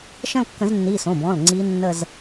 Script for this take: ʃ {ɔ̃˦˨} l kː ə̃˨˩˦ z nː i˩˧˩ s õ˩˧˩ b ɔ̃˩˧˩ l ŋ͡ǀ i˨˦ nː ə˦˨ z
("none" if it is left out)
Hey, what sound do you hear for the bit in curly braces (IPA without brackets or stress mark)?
ə̃˦˨